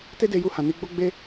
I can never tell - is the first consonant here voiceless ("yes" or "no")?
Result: yes